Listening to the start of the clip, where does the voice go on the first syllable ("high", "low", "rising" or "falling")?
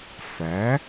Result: rising